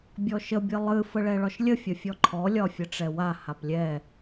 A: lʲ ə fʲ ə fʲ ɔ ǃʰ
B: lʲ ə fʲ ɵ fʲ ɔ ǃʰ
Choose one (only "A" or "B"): A